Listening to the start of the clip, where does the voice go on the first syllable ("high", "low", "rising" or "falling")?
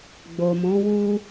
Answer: low